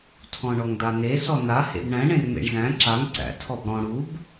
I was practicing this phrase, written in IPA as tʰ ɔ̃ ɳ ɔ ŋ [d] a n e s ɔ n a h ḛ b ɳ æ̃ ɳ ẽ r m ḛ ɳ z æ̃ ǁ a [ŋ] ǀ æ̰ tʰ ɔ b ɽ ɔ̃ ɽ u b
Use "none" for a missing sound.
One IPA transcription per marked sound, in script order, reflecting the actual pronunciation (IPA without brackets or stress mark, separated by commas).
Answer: d, ŋ